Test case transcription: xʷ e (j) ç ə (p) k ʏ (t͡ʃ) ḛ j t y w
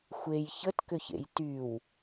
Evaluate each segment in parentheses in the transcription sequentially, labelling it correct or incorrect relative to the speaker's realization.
correct, incorrect, incorrect

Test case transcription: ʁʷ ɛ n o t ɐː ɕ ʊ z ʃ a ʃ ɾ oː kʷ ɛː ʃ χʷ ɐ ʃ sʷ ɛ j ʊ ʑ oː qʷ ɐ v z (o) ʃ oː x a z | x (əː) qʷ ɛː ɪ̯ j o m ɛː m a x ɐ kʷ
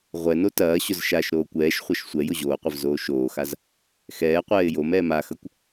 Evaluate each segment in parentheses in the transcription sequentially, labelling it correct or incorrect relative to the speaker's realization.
incorrect, incorrect

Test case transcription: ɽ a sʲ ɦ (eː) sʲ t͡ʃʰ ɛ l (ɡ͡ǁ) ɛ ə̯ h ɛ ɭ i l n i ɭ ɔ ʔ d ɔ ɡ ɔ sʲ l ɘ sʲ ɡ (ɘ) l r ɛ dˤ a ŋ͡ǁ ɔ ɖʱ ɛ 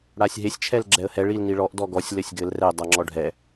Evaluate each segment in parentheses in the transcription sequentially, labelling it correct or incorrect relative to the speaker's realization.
incorrect, correct, correct

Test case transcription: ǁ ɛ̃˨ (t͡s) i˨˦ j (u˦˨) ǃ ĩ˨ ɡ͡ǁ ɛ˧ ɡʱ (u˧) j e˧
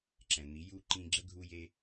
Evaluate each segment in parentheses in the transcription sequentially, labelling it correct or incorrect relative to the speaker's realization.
incorrect, correct, correct

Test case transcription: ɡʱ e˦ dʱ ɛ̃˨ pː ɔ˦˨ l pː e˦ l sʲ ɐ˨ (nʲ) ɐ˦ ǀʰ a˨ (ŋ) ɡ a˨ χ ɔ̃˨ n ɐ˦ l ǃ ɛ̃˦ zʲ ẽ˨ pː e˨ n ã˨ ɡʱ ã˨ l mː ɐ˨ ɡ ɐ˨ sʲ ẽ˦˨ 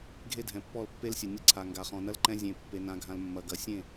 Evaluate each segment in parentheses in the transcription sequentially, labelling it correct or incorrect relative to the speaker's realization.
correct, correct

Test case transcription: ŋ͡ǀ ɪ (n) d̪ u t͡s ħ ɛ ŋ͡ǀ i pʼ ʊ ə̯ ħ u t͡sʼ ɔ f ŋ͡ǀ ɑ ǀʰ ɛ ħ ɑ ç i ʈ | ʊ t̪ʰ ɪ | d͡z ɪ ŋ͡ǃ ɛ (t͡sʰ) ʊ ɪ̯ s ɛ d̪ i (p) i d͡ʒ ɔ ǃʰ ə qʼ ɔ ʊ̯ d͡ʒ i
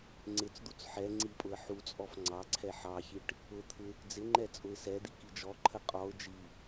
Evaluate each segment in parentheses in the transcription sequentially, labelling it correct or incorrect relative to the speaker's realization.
incorrect, incorrect, incorrect

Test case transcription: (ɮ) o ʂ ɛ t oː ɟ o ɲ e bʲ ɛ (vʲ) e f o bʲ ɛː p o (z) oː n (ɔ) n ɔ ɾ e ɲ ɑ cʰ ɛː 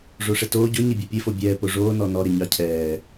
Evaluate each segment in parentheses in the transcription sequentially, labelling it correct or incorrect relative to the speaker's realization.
incorrect, incorrect, incorrect, correct

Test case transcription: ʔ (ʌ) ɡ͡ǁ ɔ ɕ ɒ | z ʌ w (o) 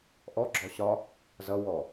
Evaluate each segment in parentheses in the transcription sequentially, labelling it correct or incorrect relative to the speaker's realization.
incorrect, incorrect

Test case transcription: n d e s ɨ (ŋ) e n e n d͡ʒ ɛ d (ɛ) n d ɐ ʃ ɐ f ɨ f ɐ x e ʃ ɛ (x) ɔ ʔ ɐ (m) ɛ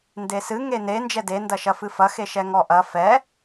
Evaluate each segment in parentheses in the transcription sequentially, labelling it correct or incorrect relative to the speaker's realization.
correct, incorrect, incorrect, incorrect

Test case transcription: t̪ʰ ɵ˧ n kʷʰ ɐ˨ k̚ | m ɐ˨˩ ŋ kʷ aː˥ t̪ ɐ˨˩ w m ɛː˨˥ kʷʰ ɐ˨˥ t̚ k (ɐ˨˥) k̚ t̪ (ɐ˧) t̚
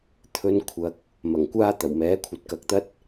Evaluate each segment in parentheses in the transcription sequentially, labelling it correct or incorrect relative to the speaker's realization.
correct, incorrect

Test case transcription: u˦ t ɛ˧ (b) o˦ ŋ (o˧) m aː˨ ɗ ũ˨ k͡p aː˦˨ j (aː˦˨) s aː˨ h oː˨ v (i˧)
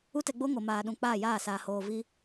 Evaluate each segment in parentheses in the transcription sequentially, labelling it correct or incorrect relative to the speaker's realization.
incorrect, incorrect, correct, correct

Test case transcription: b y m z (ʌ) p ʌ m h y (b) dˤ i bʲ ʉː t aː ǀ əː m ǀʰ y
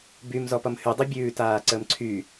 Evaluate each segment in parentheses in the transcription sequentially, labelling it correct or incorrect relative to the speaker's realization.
incorrect, incorrect

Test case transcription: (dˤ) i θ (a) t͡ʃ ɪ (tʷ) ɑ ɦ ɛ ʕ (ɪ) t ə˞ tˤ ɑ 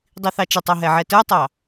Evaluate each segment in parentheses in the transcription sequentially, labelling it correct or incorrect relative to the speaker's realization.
correct, incorrect, incorrect, incorrect

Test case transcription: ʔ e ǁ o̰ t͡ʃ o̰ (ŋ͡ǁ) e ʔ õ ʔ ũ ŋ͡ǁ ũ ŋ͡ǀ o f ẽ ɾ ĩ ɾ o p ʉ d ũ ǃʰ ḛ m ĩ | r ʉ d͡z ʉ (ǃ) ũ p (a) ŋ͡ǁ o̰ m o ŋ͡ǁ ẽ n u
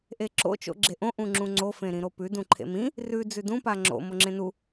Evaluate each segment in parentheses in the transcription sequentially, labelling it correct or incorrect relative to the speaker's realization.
incorrect, incorrect, correct

